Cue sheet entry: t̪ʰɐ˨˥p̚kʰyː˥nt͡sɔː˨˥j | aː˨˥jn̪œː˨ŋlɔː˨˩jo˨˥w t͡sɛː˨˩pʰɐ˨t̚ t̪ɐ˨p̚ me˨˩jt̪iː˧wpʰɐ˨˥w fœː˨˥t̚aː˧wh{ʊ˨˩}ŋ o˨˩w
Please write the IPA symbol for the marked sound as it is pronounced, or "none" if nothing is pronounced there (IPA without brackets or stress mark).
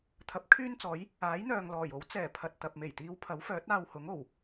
ʊ˨˥